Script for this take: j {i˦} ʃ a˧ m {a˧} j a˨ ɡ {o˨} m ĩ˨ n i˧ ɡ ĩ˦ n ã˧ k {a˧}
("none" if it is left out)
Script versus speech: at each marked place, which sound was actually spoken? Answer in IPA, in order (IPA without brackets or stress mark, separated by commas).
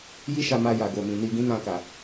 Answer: i˦, a˧, o˨, a˨